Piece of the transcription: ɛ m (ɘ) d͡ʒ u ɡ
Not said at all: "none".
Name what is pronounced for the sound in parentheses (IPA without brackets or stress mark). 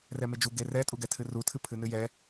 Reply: e